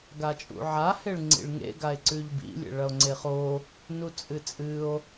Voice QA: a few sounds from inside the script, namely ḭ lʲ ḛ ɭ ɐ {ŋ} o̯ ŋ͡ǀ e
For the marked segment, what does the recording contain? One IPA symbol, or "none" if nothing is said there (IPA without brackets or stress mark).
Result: none